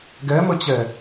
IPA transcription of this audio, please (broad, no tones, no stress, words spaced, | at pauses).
ɡɛmət͡ɕɛ